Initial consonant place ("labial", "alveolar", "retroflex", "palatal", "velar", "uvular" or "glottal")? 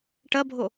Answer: retroflex